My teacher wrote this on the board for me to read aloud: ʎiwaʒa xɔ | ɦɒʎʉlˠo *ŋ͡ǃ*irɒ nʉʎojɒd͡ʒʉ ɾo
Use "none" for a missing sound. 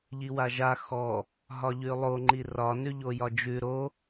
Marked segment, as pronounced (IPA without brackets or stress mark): ŋ͡ǃ